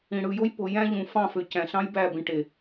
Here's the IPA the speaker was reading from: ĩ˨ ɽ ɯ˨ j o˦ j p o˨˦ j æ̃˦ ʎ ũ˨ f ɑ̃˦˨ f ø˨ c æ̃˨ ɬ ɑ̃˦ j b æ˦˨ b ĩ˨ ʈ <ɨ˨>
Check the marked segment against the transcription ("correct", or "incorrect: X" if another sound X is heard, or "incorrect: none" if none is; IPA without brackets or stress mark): incorrect: e˨